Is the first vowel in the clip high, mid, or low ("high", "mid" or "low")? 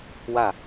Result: low